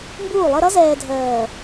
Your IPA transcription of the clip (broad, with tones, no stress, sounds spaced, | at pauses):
m b uː˦˨ lˠ ə˦ ɾ ʌ˦ z ɛː˨ dʱ ɜː˨